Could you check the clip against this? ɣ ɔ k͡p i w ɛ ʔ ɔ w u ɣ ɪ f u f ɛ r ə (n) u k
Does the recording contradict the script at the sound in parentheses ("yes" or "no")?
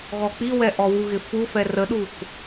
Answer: yes